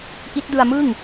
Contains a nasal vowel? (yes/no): no